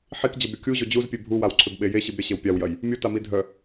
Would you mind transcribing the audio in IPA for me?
ħ i k d͡ʑ ɐ b ɾʲ u kʲ u ʑ o d͡ʑ u z pʲ e bʱ u w a w ǀʰ ʏ b ɓ e j e ɕ i b ɾʲ ɐ ɕ e w pʲ a w j ɐ j | mʲ u t a m i dʱ œ

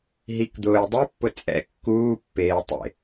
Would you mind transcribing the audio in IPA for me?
ɦ i k d̪ ʊː j dˤ u pː ʊ t͡sʼ ɛ̰ kː uː pː eː tˤ ḛ

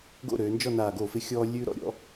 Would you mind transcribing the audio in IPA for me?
ɡ o̰˥˧ ɾ øː˩˧ n d͡ʒ ɔ˥˧ n aː˧˩ ɡ o˧˩ f ɪ˧ xʲ ɔː˧ lʲ ʉː˧ ɾ ɔ̰˧ ɾʲ ɔ̰˩˧

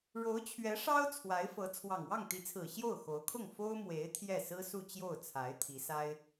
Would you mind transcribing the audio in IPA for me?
ɻ o˧˥ ʊ̯ t͡ɕʰ ɥ ɛ˧˥ ʂ ɑ˥ ʊ̯ t͡sʰ w a˧˥ ɪ̯ f ɤ˧˥ t͡sʰ w ɑ˨˩ ŋ w ɑ˥˩ ŋ t̪ i˧˥ t͡sʰ ɹ̩˨˩ ɕ j o˥˩ ʊ̯ x o˧˥ ʊ̯ kʰ ʊ˥˩ ŋ f o˥ ʊ̯ m w e˧˥ ɪ̯ t̪ʰ j ɛ˥˩ s ɹ̩˥ s u˥˧ t͡ɕ j o˥˩ ʊ̯ t͡sʰ a˧˥ ɪ̯ t̪ʰ i˧˥ s a˥ ɪ̯

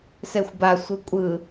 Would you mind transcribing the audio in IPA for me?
s ɛ xʷ b a sʷ ɯ kʷʼ ɯ

